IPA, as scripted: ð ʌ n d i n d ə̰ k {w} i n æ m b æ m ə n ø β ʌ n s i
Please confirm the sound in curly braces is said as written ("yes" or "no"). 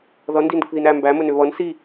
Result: no